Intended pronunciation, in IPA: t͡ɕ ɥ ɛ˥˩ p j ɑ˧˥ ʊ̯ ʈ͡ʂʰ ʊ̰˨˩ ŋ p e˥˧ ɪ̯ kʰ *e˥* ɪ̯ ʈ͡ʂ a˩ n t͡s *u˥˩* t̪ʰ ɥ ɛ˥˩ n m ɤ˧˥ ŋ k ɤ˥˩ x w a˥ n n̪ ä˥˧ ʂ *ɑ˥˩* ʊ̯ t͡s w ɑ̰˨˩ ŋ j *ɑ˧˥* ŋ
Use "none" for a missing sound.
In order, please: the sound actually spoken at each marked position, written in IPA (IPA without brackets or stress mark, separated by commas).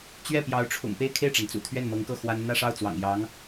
e˥˩, ṵ˨˩, ɑ˥˩, ɑ˧˥